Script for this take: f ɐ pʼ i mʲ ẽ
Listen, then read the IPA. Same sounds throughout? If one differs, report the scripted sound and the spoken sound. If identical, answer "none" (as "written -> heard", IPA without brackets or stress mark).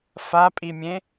ɐ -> a